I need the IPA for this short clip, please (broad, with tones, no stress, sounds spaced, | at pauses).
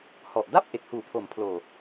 h ɔ˨˩ ʔ d a˥˩ p̚ ʔ e˨˩ k̚ h uː˩˦ pʰ o˨˩ m pʰ l oː˨˩